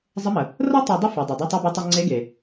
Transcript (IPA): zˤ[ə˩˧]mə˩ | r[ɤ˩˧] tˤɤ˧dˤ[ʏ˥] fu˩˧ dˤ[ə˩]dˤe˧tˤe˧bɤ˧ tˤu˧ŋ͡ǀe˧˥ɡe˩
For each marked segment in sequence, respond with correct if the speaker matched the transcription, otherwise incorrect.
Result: incorrect, incorrect, incorrect, incorrect

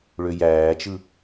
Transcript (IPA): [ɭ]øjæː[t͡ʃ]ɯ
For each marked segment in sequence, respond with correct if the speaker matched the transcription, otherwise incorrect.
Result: correct, correct

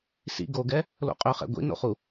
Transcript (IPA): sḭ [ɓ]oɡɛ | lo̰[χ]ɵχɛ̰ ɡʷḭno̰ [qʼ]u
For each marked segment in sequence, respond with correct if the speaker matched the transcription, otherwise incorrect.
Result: incorrect, incorrect, incorrect

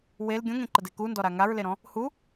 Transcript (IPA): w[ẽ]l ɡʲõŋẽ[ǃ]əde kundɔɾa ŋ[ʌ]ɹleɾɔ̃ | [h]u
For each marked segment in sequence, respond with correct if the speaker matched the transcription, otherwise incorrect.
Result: incorrect, correct, incorrect, correct

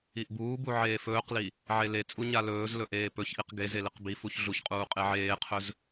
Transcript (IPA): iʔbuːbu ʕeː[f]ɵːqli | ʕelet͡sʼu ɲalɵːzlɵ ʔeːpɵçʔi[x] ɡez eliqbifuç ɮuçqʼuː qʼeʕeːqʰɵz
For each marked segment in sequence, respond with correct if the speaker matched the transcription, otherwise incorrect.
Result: correct, incorrect

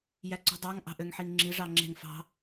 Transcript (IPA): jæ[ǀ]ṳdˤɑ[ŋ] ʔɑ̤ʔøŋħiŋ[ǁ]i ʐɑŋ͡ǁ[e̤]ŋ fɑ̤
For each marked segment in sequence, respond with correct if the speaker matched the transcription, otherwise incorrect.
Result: correct, correct, incorrect, correct

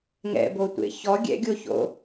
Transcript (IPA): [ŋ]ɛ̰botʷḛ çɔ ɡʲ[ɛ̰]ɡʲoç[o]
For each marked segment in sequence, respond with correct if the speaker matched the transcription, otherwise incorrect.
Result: correct, correct, incorrect

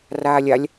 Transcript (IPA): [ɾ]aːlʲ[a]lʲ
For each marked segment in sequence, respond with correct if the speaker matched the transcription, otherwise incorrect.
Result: incorrect, correct

